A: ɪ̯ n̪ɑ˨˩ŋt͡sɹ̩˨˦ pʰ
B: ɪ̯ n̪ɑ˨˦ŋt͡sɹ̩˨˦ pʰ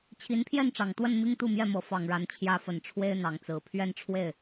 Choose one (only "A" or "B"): B